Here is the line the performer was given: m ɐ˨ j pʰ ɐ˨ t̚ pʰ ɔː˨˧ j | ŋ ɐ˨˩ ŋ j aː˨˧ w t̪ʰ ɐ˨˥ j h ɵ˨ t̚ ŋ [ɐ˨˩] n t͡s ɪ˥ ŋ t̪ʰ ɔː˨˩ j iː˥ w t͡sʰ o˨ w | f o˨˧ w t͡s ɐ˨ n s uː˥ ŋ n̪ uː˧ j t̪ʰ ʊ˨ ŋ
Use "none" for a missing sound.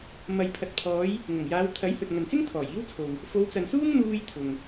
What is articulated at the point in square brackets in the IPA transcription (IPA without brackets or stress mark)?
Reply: ɐ˨